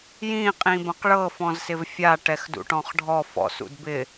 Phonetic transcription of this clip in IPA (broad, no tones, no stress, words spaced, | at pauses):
jĩ qʼĩbɐ̃qɭɤ fɔ̃zsɪvfʲa ʈɛxdṵʈɔ̃χɖʱɔ fɔ̰sṵdbɪ